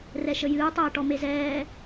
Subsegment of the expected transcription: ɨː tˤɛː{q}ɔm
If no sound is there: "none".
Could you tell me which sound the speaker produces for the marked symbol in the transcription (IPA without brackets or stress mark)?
ʈ